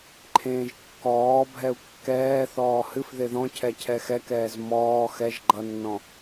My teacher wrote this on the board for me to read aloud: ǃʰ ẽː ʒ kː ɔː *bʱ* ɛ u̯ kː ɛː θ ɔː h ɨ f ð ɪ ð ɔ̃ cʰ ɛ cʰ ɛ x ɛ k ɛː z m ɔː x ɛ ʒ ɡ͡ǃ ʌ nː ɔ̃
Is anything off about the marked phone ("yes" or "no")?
no